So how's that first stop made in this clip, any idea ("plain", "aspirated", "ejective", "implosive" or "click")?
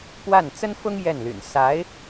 plain